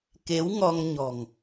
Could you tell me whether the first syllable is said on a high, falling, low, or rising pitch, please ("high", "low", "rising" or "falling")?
rising